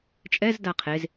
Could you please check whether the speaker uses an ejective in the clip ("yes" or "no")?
yes